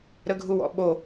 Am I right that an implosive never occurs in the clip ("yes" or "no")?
no